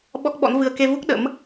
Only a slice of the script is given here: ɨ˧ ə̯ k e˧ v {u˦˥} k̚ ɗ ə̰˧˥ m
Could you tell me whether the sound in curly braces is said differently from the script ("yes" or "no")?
no